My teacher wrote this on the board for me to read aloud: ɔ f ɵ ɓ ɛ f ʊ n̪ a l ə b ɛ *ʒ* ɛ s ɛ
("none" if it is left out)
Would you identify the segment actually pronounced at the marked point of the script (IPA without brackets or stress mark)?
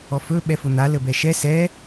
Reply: ʃ